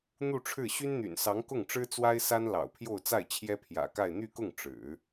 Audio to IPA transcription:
n̪ u˥˧ ʈ͡ʂʰ ɻ̩˥˩ ɕ y˥ n n̪ y̰˨˩ n s ɑ˧˥ ŋ k ʊ˥˩ ŋ ʈ͡ʂ ɻ̩˥ t͡s w a˥ ɪ̯ s a˥ n l ɑ̰˨˩ ʊ̯ pʰ j o˥˧ ʊ̯ t͡s a˥˩ ɪ̯ t͡ɕʰ j ɛ˥ pʰ j ä̰˨˩ k a˥˧ ɪ̯ n̪ y˥˧ k ʊ˥˩ ŋ ʈ͡ʂ ɻ̩˨˩˦

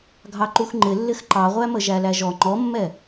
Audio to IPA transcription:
ɡʱ ɑ ǃ u x ŋ͡ǃ ɪ lː ɪ x ǃ ɑ ʁʷ æ m ə ʒ æ l æ ʒ ɔ ŋ͡ǃ ɔ mː ɛ

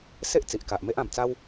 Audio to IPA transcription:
s e˦ ʔ t͡s i˨ ʔ k a˨ ʔ m e˦ ʔ ã˨˩ m t͡s a˦ w

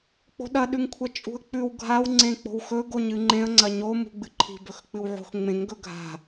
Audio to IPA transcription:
k͡p o̤ ɗ ɐ ɗ ʉ ŋ kʷʰ ɐ t͡ʃʼ ṳ ə̯ k͡p ʉ w ɡʱ a w ŋ͡ǀ ẽ k͡p o̤ w x ɵ ɡ o ɲ ɨ ŋ͡ǃ ẽ ə̯ ŋ͡ǀ ɐ ɲ o m ṳ ɡ͡b ɨ ǃʰ i̤ b ɵ x k͡p ɨ w ʕ o̤ x ŋ͡m ẽ ŋ ɡ ɵ ɡʱ a̤

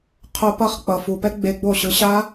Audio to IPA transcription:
qʰ o˧ p ʌ˦˨ χ k͡p ʌ˨ f u˨ p ɛ˦ ɡ͡b e˧ ɡ͡b o˦˨ ɕ ɯ˧ ɕ a˦

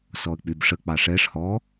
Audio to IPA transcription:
s ɔ ə̯ k͡p y b ʂ ə k͡p ɑ ʂ ɛ ʂ h ɔ

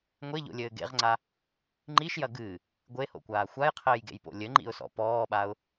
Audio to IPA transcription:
ŋʷ e ʎ o̰ lʲ ɘː ɡ ḛ ʁ ŋ͡ǀ a | ŋ͡ǃ i ʃ j ɐ ɡ ɨː | ɡʷ e h o̰ kʷ aː xʷ a j qʰ ɘː j ɡ ḛ j p o̰ lʲ ɘ ŋ͡ǃ ḭ ʊ̯ s ɔ̰ p ɔː ɓ a ʊ̯

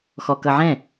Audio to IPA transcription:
x ɔ k ʌ ʕ ɛ̃

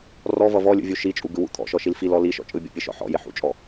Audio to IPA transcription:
r ɔ v ʌ v ɔ lʲ ṵ vʲ u ʃ i t͡ʃʼ u ɡ ɯ w ṵ t̪ʰ ɔ̰ ʃ ɔ ʃ i l f i l ɔ l i ʃ ɔ̰ t͡ʃʼ ɯ bʲ ɔ̰ pʲ ɯ ʃ ɔ̰ ħ ɔ̰ j ɪ ħ ṵ t͡ʃʼ ɔ

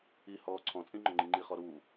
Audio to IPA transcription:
i h ɔː ǀʰ ɔ̃ t͡sʼ ĩ ŋ͡ǃ ʊ ŋ͡ǃ ĩ ŋ͡ǃ i χ ɔ ɾ uː

